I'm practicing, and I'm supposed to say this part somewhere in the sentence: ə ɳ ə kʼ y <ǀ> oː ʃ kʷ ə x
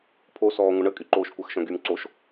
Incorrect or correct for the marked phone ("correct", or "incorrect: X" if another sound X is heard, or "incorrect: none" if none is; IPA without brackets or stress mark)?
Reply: incorrect: ǃ